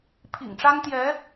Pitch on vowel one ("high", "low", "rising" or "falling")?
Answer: low